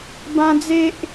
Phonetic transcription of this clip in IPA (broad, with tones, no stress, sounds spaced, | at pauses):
b ã˦ d͡z e˦ ʔ